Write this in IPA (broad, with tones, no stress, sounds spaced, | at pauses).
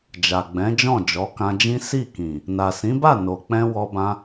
d͡ʒ a˨ ɡ͡b ɛ̃˨˦ d͡ʒ ɔ̃˦˨ d͡ʒ ɔ˨˦ k ã˧ d͡ʒ ĩ˦ s i˦˨ k ĩ˨ | n a˨ s ĩ˨˦ b a˦˨ n o˨ k͡p ɛ̃˧ w ɔ˧ b ã˧